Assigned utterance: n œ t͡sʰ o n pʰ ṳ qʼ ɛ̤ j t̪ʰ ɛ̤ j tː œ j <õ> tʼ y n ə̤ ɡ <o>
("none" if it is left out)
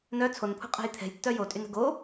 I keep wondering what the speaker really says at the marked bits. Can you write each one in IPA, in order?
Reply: o, o

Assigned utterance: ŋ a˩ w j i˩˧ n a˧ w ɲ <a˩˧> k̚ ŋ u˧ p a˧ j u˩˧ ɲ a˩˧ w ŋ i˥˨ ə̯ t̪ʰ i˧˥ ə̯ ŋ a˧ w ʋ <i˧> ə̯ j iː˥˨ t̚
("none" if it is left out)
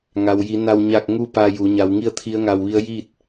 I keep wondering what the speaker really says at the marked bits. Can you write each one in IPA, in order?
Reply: a˥˨, i˧˥

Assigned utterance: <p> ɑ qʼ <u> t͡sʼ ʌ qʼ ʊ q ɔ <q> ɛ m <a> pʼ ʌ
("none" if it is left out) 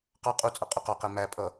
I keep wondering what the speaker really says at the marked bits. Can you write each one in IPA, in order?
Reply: q, u, q, æ

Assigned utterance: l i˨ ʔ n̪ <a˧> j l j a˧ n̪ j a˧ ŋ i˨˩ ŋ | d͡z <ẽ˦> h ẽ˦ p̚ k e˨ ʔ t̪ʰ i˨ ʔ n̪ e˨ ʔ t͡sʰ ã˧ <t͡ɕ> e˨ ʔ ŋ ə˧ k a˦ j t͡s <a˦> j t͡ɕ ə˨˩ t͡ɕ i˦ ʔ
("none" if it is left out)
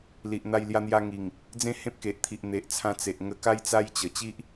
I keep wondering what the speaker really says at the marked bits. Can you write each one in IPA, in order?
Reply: a˧, ẽ˥˧, t͡s, a˦

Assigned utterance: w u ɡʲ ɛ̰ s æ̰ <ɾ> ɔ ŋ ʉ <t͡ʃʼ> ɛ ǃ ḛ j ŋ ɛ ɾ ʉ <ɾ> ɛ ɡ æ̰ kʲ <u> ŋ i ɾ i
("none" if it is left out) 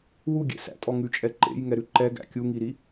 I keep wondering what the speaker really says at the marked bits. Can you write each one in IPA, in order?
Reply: tʼ, t͡ʃʼ, ǃ, u

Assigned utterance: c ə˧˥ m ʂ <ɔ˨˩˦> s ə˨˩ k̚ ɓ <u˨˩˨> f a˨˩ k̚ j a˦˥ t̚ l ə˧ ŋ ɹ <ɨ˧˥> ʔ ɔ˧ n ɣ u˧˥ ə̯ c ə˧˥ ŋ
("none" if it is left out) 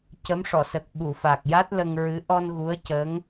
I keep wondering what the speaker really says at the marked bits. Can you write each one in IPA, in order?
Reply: ɔ˨˩˨, u˨˩˨, ɨ˧˥

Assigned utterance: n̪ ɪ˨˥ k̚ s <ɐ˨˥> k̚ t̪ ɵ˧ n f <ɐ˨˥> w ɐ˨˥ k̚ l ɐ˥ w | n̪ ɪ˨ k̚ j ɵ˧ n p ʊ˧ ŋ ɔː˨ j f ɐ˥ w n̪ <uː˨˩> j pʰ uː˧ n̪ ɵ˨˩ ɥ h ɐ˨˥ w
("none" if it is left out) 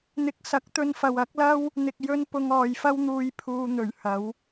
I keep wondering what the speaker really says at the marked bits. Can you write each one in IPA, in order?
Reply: ɐ˨˥, ɐ˨, uː˧

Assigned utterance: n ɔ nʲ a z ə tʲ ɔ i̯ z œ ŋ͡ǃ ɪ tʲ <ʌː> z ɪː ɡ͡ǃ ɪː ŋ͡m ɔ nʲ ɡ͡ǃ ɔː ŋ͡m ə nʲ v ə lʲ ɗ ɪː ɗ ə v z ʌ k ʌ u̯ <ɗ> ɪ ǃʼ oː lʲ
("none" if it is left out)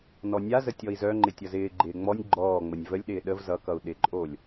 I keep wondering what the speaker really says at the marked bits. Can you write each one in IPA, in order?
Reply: ʌ, ɗ

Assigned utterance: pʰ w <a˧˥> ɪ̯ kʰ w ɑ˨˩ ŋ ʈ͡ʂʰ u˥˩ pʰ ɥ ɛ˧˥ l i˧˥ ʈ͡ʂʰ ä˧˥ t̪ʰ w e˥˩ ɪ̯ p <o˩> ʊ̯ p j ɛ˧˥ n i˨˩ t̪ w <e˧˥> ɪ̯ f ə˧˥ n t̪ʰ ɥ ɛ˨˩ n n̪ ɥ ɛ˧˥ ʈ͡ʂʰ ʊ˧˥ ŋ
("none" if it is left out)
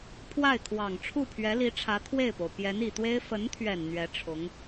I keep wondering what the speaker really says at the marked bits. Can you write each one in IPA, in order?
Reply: a˥˩, o˩, e˥

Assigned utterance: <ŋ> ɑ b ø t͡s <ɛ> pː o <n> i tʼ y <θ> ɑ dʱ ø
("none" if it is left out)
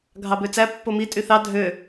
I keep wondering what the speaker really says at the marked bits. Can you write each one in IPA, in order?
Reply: ɡʱ, æ, m, θ

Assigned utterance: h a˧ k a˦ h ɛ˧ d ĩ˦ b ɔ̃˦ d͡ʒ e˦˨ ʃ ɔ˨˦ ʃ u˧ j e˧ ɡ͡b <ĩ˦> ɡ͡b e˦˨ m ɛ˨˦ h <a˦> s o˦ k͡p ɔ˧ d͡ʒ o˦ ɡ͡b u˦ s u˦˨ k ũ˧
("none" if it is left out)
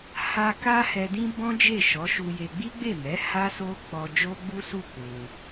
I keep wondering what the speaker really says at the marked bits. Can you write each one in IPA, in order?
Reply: i˦, a˦

